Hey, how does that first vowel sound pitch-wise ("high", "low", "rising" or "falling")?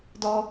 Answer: high